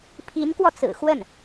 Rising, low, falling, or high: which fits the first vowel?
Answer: rising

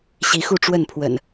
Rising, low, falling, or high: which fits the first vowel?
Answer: rising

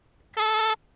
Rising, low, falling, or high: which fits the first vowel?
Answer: high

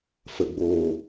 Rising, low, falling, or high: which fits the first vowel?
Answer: low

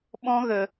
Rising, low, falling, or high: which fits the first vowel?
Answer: high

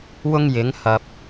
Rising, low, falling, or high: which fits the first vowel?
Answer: high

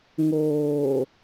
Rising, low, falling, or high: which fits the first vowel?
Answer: low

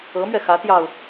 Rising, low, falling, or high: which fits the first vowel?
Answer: rising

